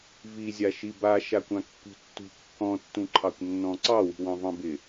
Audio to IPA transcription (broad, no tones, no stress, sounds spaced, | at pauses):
v i zʲ a ʃ i b a ʃ a kʷ ã kː ṳ tː ṳ kː ɔ̃ tː ũ ǃʰ ɑ kʷ nː ɔ̃ ǀ ɑ w i̤ w ɑ̃ v ɑ̃ b ɪ